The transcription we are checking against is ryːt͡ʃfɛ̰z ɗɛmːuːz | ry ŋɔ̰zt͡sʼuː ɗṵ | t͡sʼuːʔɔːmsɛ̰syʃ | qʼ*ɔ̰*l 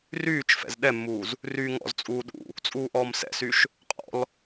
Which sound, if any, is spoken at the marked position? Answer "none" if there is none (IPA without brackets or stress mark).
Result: ɔ̰